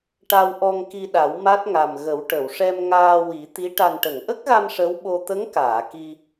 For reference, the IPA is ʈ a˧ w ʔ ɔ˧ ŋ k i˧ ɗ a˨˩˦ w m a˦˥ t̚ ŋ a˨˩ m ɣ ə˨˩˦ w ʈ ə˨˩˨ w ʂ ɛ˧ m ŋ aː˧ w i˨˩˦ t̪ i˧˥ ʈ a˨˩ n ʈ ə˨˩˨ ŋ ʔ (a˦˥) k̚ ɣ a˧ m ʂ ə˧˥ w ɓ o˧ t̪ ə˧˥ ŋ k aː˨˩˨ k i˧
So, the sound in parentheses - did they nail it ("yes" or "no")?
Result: no